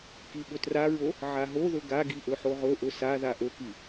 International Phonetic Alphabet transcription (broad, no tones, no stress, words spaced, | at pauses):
kiɓɵtraɹo | ʕaɦoðɵ ɡaɡi ʔɵħoʁɵʔɵ saða ʔɵki